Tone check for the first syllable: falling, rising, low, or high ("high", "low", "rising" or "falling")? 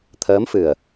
rising